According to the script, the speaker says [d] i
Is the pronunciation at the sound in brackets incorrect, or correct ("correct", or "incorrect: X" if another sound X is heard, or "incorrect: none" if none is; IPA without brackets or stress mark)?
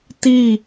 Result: incorrect: t